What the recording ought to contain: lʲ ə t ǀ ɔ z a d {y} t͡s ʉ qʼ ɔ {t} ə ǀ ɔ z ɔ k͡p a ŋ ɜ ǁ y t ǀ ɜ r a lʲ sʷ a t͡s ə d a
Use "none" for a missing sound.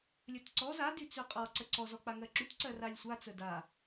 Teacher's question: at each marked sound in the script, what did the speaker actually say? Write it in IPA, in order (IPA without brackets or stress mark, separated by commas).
y, ǀ